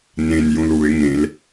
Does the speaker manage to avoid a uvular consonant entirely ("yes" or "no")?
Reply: yes